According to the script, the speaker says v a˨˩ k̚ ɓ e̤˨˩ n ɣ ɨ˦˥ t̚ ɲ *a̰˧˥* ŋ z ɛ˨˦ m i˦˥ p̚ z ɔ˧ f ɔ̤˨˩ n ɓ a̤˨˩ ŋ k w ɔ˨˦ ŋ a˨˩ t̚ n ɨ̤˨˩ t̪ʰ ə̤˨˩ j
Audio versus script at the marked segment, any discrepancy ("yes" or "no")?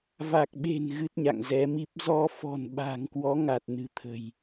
yes